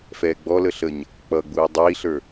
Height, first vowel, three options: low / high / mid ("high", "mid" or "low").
mid